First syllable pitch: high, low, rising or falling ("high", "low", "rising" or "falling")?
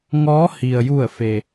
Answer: rising